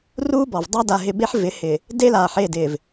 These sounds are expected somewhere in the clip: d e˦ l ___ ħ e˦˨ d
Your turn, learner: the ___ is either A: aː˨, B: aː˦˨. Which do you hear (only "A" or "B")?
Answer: A